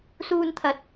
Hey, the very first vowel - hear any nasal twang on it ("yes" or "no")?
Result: no